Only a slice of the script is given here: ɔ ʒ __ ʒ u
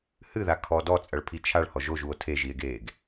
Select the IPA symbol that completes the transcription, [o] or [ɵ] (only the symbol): o